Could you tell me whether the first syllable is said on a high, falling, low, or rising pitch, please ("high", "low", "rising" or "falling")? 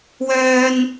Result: high